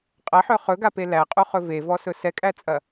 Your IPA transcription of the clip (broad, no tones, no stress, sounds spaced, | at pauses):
qʼ ɐ ħ œ χ ɵ ɡ a p e l æ qʼ u χ ɵ v e v ɔ s ɵ s ɛ kʼ æ t͡sʼ ɐ